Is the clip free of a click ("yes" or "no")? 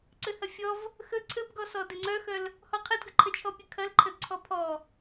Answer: no